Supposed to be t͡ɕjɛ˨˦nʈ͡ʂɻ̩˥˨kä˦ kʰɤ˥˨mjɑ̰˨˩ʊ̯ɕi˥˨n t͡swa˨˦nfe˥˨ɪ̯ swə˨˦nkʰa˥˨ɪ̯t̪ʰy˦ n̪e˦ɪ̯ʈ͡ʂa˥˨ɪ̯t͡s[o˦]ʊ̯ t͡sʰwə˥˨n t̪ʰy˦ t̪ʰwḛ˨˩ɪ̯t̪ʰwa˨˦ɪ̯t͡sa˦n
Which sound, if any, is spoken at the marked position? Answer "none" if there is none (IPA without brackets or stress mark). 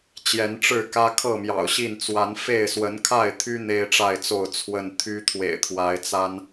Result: o˥˨